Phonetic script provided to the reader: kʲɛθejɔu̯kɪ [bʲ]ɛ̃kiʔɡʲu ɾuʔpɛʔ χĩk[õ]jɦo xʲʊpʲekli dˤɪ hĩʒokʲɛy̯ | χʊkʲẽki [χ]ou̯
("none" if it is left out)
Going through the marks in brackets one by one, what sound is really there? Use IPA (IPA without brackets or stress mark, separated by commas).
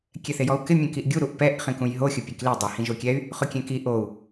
mʲ, ũ, ʔ